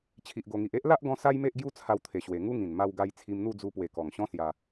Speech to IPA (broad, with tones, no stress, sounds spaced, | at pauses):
t͡ɕʰ i˨ ʔ ɡ o˨˩ ŋ i˨ ʔ e˦ ʔ l a˦ ʔ ɡ ɔ̃˧ s a˦ j m e˦ ʔ ɡ j u˦ t͡sʰ a˧ w t̪ʰ e˨˩ ɕ w e˨˩ ŋ u˦ ŋ ĩ˨˩ n m a˧ w ɡ a˧ j t͡sʰ i˧ m n̪ u˥˧ d͡z u˧ p w e˨˩ k ɔ˨˩ ŋ ɕ ɔ̃˦ s j a˧